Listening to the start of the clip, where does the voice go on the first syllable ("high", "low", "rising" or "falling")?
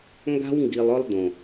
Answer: high